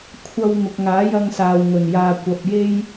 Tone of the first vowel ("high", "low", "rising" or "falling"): high